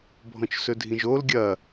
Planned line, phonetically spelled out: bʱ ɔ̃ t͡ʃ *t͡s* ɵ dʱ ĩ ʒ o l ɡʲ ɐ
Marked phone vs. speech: incorrect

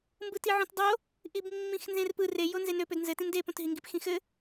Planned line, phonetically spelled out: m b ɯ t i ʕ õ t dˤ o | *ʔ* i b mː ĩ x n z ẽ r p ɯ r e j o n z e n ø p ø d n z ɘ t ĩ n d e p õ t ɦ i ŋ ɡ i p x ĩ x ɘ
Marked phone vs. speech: correct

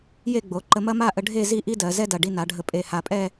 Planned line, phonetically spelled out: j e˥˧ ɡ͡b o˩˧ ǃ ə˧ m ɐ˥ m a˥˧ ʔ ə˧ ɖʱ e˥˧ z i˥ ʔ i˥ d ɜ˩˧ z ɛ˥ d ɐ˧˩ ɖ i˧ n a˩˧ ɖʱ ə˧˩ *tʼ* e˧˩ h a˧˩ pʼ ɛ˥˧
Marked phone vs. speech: incorrect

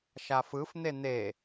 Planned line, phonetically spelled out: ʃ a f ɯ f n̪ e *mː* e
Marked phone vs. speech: incorrect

